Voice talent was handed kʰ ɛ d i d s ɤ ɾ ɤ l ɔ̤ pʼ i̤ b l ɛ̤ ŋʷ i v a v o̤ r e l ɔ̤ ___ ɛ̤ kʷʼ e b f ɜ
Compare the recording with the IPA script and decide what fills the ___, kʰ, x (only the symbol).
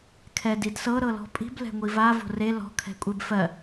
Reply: kʰ